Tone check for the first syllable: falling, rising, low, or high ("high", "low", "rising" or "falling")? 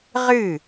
falling